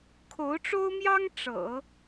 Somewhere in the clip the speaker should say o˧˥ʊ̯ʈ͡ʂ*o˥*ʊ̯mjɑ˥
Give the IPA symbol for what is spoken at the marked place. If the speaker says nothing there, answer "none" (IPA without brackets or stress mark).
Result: o˥